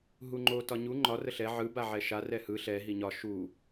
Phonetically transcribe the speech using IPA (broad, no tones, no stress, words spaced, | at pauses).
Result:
ɦuŋ͡ǃo tɒɲu ŋ͡ǃɒ rəɬɛ ʕɯ baʕɛʃa rɛhɯ ɬɛ ɦiɲɒ ʃu